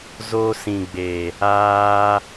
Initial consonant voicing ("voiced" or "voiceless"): voiced